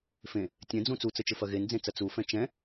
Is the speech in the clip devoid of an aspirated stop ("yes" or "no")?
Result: yes